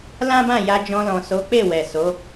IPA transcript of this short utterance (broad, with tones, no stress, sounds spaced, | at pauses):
l ã˦ b ã˦˨ j a˧ d͡ʒ ɔ̃˧ l ɔ̃˨ s o˨˦ k͡p e˦˨ w ɛ˨ s o˨˦